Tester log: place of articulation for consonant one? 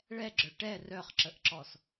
retroflex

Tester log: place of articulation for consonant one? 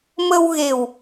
labial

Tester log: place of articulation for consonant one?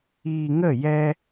velar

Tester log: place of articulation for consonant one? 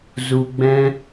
alveolar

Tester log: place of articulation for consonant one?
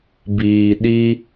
labial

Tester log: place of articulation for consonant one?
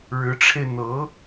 retroflex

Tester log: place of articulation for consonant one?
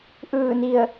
glottal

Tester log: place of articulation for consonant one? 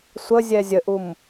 alveolar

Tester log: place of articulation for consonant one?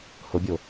glottal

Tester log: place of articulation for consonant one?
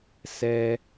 alveolar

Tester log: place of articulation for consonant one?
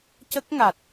palatal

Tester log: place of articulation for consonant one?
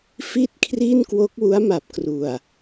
labial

